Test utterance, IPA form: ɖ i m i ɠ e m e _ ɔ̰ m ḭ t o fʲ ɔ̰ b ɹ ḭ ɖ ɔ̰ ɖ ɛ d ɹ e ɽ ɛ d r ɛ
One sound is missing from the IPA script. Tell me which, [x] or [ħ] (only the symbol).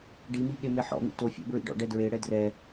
ħ